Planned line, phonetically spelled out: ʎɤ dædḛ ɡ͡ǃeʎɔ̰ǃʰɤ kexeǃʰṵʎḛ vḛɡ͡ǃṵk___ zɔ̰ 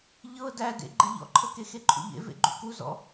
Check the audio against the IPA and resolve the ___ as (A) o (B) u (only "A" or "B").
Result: B